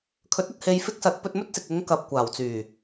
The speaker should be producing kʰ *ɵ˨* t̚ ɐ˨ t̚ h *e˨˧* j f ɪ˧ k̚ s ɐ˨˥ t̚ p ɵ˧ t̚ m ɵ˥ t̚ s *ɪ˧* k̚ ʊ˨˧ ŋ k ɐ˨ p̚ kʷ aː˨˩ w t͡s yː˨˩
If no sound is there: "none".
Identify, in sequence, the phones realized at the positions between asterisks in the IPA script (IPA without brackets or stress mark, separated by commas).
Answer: ɵ˨˥, e˨˧, ɪ˨